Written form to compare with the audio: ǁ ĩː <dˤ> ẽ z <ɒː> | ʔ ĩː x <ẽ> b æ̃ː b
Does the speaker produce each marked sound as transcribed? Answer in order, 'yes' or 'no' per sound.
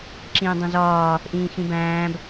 yes, yes, no

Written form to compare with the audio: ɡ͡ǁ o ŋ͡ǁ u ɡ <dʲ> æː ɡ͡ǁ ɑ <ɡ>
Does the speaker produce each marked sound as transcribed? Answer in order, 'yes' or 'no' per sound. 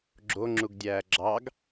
yes, yes

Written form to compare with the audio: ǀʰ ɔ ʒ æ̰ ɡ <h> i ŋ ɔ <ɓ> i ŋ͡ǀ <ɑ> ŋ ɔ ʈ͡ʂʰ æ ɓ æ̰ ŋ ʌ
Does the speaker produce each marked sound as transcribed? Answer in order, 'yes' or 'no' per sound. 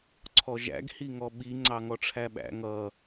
yes, yes, yes

